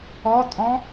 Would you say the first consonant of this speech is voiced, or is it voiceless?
voiceless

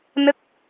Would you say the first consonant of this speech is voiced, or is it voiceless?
voiced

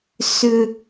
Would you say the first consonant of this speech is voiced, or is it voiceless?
voiceless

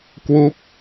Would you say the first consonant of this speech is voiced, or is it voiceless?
voiceless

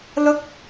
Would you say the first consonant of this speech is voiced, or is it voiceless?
voiced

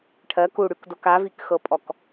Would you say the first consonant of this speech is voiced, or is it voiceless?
voiceless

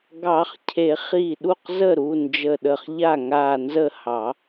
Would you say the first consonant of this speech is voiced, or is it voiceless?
voiced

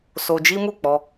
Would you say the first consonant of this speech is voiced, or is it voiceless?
voiceless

